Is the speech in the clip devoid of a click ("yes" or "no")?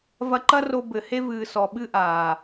no